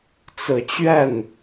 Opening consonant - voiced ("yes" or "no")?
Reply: no